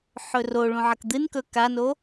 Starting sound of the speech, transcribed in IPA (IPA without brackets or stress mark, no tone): ħ